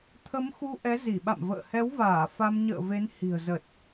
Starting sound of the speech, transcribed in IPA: t̪ʰ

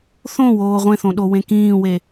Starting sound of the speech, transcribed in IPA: θ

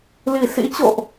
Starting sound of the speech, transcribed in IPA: l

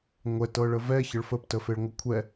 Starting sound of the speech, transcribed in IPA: ŋʷ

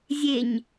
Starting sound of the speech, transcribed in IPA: zʲ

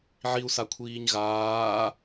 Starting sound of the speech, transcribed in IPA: ʕ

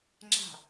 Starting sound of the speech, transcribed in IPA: ŋ͡ǁ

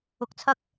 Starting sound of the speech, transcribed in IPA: ʊ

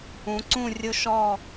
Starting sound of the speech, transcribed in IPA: ũ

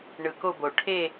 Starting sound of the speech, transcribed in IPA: ɳ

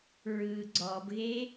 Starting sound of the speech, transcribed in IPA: ɹ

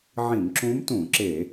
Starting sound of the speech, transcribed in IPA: ʕ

